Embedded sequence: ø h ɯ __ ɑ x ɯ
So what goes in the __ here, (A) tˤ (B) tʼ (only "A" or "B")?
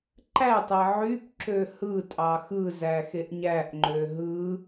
B